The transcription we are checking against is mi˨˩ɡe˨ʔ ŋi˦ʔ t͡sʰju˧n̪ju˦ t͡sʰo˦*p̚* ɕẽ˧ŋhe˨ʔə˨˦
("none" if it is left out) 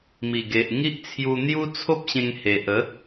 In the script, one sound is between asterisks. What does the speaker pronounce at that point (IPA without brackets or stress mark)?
p̚